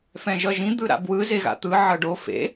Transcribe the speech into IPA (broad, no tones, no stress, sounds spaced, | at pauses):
f ɛ̃ ʒ ʌ ʒ ĩ d̪ ɯ ɾ a̰ b w ɯ z e ɣ a̰ t̪ ɯ ʕ ʌ ɖ o f ḛ